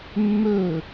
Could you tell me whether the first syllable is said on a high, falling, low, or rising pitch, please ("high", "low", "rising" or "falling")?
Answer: falling